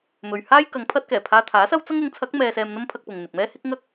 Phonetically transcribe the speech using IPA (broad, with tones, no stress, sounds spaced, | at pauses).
m ɵ˨ ɥ h aː˥ j k ɐ˨˧ ŋ pʰ ɐ˧ t̚ k ɛː˨˩ pʰ aː˧ t̪ʰ aː˨˥ s ɐ˥ w t͡s ɐ˥ ŋ ʊ˨˥ ŋ t͡sʰ ɐ˨˥ k̚ m ɛː˧ s ɛː˧ m n̪ ɐ˥ m pʰ ɐ˧ k̚ p ʊ˨ ŋ n̪ ɪ˨ k̚ m ɛː˥ h ɪ˥ k̚ ŋ ɐ˥ k̚